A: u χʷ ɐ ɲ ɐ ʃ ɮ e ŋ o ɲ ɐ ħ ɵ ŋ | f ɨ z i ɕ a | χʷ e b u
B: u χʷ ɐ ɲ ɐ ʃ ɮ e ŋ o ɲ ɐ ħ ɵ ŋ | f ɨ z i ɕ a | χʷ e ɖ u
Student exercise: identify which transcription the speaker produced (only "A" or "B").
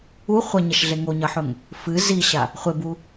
A